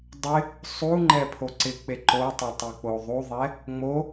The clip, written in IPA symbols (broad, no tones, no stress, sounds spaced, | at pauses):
dˤ ɪ | sˤ u ŋ͡ǃ ɛ pʰ o ǀ ɪ k͡p e ǃ o tˤ ʊ tˤ i k͡p o ðˤ u ðˤ ɛ | ŋ͡m o